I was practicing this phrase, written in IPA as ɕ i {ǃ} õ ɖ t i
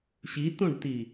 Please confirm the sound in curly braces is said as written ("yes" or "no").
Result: no